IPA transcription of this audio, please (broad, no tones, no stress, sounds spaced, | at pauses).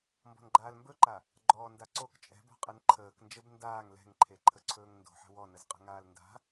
m b ɔ̤ n ɡ͡ǃ aː l m b ɵ ǃ a | ɡ͡ǃ ɔː n d a ǀ o k t͡ʃʼ ɛ̤ b ɔ̤ qʼ ɛ n ǃʰ əː k n d͡ʒ ə b n d aː ŋ l ɛ̤ ŋ ǃʰ e ǃʰ ə ǀʰ ɵː ŋ n d o̤ ħ ə̤ w ɔ n ə z qʼ ə̤ ŋ aː l n d a̤